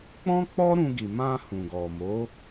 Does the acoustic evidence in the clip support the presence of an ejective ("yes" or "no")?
no